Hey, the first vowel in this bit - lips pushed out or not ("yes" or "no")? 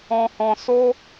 yes